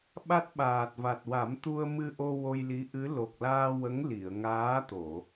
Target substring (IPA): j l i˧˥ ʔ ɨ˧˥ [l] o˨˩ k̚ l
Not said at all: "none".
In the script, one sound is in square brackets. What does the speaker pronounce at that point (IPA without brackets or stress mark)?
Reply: l